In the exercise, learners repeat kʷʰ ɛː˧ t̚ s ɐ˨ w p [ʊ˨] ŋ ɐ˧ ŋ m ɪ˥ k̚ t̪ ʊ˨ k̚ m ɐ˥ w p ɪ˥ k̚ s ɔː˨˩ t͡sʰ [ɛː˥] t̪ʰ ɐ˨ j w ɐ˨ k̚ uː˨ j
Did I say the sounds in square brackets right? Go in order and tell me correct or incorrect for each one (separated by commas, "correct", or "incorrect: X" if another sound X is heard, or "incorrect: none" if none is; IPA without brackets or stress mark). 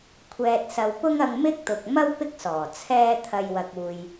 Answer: incorrect: ʊ˥, correct